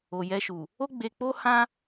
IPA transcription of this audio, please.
o˨ j ɛ˧ ʃ u˨ | o˦ ɡ͡b e˧ k͡p o˦ h ã˦

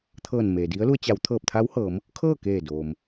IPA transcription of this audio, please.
t̪ʰ ɤː˧˩ n m eː˩ d i˧˥ ə̯ l u˧ ə̯ t͡ɕ a˩˧ w t̪ʰ ɤː˧˩ p̚ t̪ʰ a˧˥ w h ɤː˩˧ m | kʰ ɤː˥˨ k eː˧˩ d oː˩ m

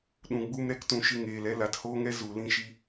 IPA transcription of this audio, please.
ɗ ũ˧ ɡ͡b u˦ m ɾ ɛ˦ k t ũ˧ ʃ ɨ˧ ŋ eː˨ l ɛ˧ l a˨ t h oː˦ ŋ ɛ˦ z u˨ l ĩ˧ ʃ i˧

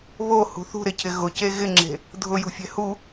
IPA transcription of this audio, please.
β o h ṳ θ ṳ ɾ ɪ cʰ ɪ ɣ ʊ c e ɣ ɪ ŋ͡ǁ e̤ | dʱ ʊ j ṳ fʲ ɛ̤ h u

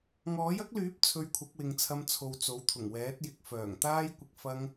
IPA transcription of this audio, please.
ŋ ɔː˨˥ j ɐ˥ k̚ l yː˨˥ p̚ t͡sʰ ɵ˧ ɥ kʷʰ ɐ˨˥ k̚ w ɪ˨ ŋ t͡sʰ ɐ˧ m t͡sʰ o˨ w t͡s o˨˥ w t̪ʰ ʊ˨˩ ŋ w ɛː˨˥ t̚ j ɪ˨˥ k̚ f œː˨˩ ŋ t̪ aː˥ j kʷ ɪ˧ k̚ f ɐ˧ ŋ

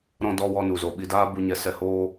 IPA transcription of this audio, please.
ɾ ɔ̃˧ d ɔ˧ w ɔ˧ n u˨ z o˨ ɓ i˨ d aː˧ b u˨ ɲ ɛ˧ s ɛ˧ h oː˦

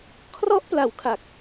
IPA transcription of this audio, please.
kʰ r ɔ˦˥ ʔ p l a˩˦ w kʰ a˨˩ k̚

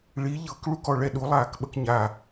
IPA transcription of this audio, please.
ɭ i ʎ ɤ k ɭ u k ɔ ɭ ɛ ɗ u lˠ aː k ɓ ə k ɲ a

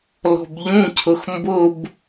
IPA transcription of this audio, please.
l ɔ̤ b ʎ ũ cʰ ʊ x m b ʊ b

